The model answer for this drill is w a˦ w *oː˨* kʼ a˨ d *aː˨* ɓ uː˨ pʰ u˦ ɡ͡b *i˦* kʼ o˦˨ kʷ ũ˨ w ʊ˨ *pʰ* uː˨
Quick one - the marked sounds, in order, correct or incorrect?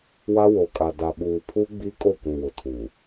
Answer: incorrect: o˨, incorrect: a˨, correct, incorrect: tʰ

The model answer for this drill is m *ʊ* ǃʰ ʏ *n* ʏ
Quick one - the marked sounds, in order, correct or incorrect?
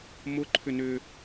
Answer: correct, correct

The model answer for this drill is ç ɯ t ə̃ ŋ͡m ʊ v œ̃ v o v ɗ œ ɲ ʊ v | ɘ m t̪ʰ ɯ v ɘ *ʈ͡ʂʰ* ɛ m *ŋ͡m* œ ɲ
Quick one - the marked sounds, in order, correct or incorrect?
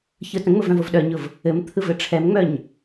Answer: correct, correct

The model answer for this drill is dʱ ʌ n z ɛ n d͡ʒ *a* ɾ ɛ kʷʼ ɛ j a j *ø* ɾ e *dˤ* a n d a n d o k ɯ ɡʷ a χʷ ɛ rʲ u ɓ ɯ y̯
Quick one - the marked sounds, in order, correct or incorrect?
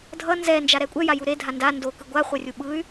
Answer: correct, incorrect: u, incorrect: dʱ

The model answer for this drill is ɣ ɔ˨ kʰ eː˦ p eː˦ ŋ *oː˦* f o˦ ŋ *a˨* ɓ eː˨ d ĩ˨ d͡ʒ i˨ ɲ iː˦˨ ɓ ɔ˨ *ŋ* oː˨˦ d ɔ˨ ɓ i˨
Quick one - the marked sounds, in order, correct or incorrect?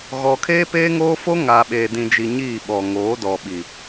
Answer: correct, correct, correct

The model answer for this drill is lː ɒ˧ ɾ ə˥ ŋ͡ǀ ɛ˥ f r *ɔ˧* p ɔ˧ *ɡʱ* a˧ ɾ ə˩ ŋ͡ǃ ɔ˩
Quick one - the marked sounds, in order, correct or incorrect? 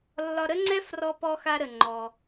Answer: correct, incorrect: x

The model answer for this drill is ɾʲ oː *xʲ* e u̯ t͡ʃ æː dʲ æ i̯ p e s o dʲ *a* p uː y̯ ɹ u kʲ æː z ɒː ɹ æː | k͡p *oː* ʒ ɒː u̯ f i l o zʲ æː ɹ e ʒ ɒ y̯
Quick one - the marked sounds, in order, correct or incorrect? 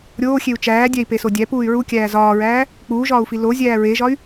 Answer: correct, incorrect: æ, incorrect: uː

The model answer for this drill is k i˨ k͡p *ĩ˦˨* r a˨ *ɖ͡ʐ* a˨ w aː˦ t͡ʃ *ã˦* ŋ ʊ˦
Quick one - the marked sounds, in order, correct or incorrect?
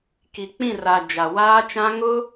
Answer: correct, incorrect: d͡ʒ, correct

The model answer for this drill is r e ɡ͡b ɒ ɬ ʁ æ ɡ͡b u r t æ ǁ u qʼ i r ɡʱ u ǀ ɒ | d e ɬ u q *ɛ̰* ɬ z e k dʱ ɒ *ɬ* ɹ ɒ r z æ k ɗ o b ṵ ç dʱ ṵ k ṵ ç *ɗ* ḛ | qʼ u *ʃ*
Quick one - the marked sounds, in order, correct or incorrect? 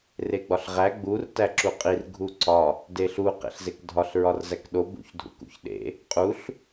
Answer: incorrect: ḛ, correct, correct, incorrect: ɬ

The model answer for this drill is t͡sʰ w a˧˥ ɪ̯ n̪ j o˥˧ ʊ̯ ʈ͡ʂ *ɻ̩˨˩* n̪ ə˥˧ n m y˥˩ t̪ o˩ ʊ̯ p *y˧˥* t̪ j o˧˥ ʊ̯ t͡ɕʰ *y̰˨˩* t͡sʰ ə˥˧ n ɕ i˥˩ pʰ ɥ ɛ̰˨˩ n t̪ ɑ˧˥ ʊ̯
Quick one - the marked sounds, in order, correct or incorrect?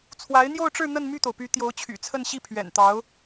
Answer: incorrect: ɻ̩˥˧, correct, correct

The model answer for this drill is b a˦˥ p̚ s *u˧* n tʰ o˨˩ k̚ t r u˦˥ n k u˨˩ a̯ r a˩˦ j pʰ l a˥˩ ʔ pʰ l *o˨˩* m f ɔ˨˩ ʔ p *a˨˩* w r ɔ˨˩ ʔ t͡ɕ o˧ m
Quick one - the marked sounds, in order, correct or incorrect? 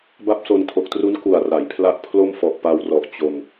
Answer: incorrect: o˧, incorrect: o˥˩, incorrect: a˧

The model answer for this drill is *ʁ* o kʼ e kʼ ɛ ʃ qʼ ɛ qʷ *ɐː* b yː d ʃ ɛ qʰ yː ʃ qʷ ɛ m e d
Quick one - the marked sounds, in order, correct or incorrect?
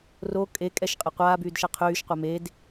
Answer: incorrect: r, incorrect: aː

